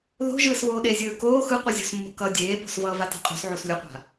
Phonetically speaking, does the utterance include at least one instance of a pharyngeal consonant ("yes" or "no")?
yes